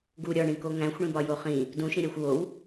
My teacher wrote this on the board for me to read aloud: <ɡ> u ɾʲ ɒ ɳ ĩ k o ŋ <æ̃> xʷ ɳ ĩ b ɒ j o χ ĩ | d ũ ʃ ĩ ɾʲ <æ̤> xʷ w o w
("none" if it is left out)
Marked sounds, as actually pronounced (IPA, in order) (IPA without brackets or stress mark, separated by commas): ɡ, æ̃, æ